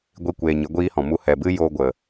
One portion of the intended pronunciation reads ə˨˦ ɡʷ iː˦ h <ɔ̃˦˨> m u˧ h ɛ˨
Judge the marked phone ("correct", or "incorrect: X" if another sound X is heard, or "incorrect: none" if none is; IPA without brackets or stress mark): incorrect: ɔ̃˨